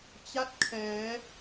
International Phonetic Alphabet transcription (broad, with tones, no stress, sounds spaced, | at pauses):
t͡ɕ a˥˩ t̚ kʰ ɛː˩˦